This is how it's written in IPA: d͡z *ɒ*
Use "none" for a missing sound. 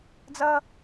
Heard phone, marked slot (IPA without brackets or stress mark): ʌ